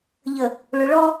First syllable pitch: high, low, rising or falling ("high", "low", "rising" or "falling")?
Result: low